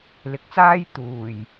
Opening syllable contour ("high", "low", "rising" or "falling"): low